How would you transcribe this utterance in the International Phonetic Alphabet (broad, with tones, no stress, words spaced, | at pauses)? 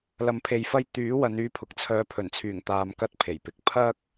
lɐ˨mpʰe˨jfɐ˧j t̪yː˨˥ wɐ˨˧nyː˧pʰʊ˨k̚ t͡sʰœː˨˧pʰɵ˨˩nt͡sʰyː˨˩ŋ t̪aː˧mkɐ˥t̚pʰe˨˩jpɪ˨k̚ pʰɐ˥k̚